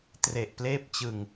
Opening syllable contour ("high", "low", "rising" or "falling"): low